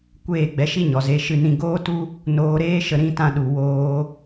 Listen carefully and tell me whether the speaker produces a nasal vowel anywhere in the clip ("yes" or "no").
yes